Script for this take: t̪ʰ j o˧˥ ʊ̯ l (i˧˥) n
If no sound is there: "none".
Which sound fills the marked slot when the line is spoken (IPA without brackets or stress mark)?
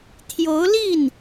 i˥˩